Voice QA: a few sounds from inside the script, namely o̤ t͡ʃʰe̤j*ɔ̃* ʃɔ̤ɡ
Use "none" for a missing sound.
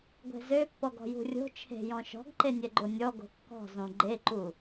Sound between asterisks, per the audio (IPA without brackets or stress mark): ɔ̃